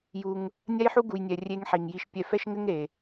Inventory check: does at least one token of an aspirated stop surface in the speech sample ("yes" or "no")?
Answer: no